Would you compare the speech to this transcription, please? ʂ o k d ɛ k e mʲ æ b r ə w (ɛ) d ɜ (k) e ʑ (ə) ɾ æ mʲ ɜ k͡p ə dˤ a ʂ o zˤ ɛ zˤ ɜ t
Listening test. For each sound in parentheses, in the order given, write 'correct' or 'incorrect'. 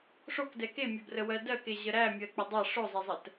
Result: incorrect: ɜ, correct, correct

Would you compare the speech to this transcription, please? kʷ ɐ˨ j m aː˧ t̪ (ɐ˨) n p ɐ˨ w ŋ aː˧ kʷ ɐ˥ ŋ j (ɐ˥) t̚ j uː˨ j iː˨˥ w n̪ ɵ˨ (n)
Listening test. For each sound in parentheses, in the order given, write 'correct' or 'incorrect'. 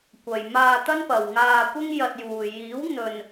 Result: incorrect: ɐ˥, incorrect: ɐ˧, correct

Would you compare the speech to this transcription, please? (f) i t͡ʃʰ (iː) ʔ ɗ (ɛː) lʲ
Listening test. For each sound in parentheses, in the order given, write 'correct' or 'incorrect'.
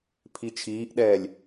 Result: incorrect: pʰ, correct, correct

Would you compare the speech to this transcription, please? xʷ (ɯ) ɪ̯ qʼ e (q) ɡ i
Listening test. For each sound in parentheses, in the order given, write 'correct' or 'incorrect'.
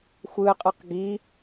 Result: correct, correct

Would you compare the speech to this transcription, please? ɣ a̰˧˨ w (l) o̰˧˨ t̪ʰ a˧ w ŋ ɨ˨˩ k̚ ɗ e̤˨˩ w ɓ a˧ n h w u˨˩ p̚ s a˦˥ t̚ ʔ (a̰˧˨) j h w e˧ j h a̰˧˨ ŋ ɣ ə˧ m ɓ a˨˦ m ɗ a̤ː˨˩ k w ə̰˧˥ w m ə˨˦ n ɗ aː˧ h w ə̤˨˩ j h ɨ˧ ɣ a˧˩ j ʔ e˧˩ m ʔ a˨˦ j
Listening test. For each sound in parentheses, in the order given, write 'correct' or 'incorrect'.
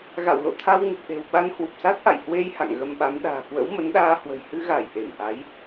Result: correct, correct

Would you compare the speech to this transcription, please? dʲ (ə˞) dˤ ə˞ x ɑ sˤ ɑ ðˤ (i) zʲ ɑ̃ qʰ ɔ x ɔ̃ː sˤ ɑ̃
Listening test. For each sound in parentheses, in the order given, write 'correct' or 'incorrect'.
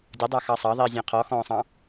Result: incorrect: ʌ, incorrect: iː

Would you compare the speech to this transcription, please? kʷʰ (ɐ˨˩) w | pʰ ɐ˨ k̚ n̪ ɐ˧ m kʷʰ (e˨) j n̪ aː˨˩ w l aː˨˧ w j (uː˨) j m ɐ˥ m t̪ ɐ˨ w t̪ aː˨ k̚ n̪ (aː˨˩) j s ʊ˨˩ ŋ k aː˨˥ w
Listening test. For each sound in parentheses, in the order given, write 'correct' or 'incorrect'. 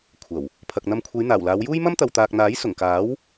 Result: correct, incorrect: e˨˧, incorrect: uː˥, incorrect: aː˨˥

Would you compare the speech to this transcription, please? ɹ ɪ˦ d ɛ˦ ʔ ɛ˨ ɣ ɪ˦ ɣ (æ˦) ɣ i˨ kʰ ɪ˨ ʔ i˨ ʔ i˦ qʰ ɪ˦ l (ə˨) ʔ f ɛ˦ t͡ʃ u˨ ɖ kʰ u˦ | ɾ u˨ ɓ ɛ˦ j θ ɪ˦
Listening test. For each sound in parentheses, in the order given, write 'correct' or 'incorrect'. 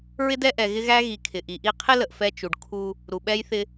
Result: correct, correct

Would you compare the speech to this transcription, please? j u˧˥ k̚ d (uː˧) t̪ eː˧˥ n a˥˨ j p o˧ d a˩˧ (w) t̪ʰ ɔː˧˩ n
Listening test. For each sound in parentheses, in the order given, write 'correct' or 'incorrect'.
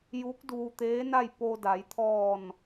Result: correct, incorrect: j

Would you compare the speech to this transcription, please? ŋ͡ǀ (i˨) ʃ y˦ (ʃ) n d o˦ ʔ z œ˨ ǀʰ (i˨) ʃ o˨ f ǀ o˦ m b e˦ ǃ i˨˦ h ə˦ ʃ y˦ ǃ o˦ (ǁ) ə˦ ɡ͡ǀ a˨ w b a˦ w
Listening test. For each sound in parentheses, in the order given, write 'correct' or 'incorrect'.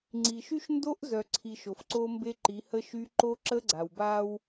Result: correct, correct, correct, correct

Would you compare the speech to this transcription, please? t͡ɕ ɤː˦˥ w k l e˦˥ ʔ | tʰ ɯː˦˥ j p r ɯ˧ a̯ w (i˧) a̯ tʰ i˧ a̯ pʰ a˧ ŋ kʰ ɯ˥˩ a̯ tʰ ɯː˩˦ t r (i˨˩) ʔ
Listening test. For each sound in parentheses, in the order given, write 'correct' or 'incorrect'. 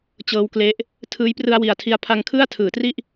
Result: incorrect: i˨˩, incorrect: i˥˩

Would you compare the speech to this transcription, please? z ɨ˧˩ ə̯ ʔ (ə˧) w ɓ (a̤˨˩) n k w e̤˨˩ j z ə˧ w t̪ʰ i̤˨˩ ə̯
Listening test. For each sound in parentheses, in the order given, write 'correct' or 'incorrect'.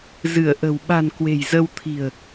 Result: incorrect: ə̤˨˩, correct

